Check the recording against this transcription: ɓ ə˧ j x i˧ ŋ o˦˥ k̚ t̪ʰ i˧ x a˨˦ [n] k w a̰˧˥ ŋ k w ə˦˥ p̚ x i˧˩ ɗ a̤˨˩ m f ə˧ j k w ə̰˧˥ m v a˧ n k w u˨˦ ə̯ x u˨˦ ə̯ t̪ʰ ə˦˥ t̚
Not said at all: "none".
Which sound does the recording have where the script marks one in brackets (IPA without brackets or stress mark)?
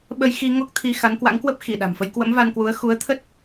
n